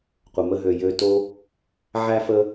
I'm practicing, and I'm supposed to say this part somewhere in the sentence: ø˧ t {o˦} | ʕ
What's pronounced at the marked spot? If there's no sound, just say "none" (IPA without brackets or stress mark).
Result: o˦